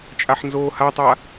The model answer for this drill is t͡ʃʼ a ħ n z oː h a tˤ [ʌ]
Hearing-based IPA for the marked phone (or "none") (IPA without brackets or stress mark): a